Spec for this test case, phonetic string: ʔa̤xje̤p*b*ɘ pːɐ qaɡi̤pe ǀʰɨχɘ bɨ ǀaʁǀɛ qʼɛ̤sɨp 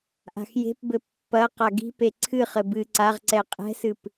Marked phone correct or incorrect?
correct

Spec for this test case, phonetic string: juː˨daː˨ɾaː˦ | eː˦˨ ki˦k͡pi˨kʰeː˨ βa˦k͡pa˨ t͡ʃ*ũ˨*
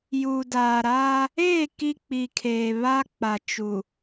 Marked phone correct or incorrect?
incorrect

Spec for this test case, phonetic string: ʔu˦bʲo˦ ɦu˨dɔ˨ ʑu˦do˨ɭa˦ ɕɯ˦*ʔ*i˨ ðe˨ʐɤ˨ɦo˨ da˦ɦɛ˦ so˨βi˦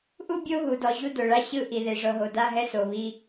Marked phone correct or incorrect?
correct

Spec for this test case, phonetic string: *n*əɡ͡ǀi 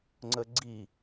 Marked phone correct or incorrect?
incorrect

